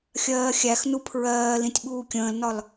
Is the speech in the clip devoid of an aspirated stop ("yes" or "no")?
no